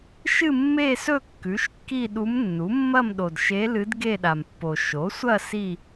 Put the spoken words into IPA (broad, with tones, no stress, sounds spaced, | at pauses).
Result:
ʃ ɨ˥˧ mː e˥˧ s ɵ˥˧ kː ʉ˩˥ ʃ kː i˥˧ ɗ u˧˥ m nː u˩˥ mː ɐ˥˧ m ɗ o˨ d ʃ e˧˥ l ɨ˧˥ d ɡ e˥˧ ɗ a˨ m pː o˨ ʃ o˩˥ sʷ ɐ˥˧ s i˥˧